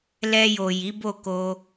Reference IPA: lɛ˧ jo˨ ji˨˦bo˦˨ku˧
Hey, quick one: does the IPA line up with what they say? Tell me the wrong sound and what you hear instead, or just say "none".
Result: u˧ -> o˧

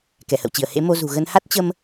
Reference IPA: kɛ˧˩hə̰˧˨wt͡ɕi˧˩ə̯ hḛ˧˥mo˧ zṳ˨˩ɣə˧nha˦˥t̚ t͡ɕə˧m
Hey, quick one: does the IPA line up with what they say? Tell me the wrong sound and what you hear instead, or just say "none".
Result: none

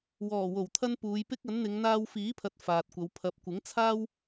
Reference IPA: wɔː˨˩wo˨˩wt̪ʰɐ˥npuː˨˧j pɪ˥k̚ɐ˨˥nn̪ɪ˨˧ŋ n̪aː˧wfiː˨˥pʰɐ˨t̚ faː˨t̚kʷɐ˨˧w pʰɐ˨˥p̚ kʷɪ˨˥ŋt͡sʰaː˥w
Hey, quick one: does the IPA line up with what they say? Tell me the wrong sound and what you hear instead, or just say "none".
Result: none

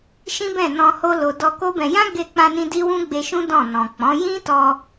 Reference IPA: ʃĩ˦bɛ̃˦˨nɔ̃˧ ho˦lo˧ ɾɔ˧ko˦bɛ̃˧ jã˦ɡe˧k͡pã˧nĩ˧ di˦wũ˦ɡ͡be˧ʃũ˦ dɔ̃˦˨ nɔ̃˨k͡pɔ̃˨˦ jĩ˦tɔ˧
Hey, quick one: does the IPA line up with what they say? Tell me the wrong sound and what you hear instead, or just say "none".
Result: ɾ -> d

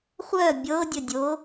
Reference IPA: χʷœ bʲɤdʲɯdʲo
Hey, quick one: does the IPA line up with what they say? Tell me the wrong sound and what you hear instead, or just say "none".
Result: ɯ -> ə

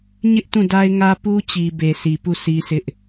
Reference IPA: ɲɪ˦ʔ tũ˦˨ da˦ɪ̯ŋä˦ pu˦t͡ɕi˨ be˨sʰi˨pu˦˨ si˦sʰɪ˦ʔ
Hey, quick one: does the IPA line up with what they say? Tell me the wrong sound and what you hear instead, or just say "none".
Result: none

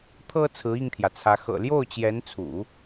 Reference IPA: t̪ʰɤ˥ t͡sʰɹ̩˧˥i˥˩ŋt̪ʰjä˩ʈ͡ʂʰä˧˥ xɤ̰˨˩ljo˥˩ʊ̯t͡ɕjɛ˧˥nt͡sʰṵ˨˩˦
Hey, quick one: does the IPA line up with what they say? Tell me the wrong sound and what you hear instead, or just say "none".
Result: ʈ͡ʂʰ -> t͡sʰ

